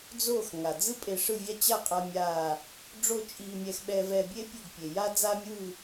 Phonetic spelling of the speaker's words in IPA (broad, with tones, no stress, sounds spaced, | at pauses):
d͡z oː˥˨ x ŋ a˩ d͡z ɯ˥ pʼ e˧ ʂ ɯ˥˨ vʲ a˥ t͡ɕ a˥˨ qʼ a˧ mʲ aː˧˩ | ɖ͡ʐ o˥˨ t͡ʃʼ iː˧ mʲ ɛ˧ x ɓ ɛ˧ v ɛː˧ bʲ eː˥ pʲ o˥˨ ɡ pʲ e˩ j a˥ d͡z a˥ mʲ ɯː˥˨